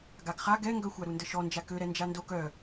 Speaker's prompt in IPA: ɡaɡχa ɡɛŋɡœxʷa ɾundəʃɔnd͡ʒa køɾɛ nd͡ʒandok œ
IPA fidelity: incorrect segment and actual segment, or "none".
none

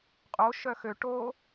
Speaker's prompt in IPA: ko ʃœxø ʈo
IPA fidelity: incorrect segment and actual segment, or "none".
k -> qʼ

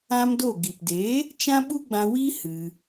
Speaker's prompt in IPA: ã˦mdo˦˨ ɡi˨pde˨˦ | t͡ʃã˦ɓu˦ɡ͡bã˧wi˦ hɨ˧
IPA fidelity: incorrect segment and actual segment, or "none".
none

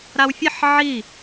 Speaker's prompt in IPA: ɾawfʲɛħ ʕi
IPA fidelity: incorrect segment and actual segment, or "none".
none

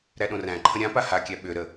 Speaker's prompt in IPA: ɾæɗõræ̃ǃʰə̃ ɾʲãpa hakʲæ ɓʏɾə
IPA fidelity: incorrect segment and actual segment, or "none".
none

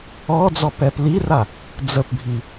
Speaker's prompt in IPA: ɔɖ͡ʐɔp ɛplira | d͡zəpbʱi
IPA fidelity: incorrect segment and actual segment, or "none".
ɖ͡ʐ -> d͡z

